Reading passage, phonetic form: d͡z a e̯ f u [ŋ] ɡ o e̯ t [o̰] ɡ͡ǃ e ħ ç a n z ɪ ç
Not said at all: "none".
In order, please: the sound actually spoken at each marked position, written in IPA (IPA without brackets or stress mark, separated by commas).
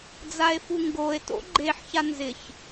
ŋ, o̰